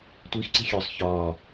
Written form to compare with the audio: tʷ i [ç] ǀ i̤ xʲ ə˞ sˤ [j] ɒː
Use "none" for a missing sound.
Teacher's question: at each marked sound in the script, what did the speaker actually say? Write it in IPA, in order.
x, ç

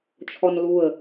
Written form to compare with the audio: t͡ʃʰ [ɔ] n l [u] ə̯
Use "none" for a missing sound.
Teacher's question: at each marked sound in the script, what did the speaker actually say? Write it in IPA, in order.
ɔ, u

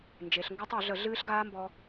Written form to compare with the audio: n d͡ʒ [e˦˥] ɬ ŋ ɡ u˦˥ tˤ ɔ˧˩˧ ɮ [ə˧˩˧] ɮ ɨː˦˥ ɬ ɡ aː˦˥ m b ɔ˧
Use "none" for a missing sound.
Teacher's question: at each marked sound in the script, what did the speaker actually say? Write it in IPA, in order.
e˩˧, ə˧˩˧

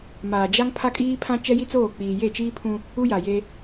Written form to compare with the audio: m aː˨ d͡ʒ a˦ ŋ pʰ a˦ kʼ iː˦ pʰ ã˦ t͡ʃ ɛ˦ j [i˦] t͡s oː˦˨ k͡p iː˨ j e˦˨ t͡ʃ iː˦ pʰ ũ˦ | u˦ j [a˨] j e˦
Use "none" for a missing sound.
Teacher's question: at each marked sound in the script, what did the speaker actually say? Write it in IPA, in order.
i˦, a˨

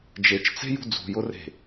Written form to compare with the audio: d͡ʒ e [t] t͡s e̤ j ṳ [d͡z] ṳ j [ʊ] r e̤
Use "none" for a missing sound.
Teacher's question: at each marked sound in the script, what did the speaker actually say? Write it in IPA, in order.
t͡ʃ, d͡z, ʊ

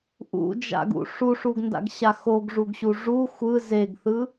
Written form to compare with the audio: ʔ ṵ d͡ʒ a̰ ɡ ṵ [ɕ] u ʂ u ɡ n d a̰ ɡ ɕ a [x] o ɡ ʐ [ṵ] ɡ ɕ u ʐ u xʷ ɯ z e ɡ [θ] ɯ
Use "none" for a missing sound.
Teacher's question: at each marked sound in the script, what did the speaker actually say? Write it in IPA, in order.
ʂ, x, u, θ

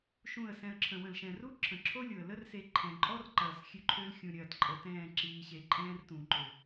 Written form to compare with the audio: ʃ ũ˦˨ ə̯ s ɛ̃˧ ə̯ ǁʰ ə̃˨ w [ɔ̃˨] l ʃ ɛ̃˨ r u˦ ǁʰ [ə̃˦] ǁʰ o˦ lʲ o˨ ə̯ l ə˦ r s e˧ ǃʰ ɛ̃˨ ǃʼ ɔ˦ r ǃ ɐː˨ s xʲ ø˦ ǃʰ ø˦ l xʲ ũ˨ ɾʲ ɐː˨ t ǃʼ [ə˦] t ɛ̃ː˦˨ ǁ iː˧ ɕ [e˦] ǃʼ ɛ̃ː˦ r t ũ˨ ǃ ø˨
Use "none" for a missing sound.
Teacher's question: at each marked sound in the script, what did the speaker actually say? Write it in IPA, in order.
ə̃˨, ə̃˨, ə˨, e˧

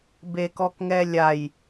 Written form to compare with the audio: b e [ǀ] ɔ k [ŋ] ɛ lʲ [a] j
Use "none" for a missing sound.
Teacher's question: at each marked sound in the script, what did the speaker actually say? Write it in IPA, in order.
k, ŋ, a

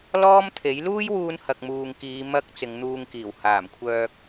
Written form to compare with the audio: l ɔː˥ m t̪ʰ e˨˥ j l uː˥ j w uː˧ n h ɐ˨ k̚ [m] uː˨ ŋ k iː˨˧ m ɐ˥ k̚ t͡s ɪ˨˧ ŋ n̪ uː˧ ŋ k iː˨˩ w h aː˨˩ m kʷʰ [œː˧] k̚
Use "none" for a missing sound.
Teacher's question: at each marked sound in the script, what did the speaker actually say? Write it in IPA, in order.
m, œː˧

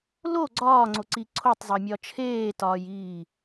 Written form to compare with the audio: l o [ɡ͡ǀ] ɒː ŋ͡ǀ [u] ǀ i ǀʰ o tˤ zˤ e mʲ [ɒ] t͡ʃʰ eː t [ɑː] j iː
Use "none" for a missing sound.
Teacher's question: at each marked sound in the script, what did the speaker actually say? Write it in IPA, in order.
ɡ͡ǀ, o, ɒ, ɒː

